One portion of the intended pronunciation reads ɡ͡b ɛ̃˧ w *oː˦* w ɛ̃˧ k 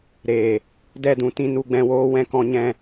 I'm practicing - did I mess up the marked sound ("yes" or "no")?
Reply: no